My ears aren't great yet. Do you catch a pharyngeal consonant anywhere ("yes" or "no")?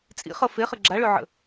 yes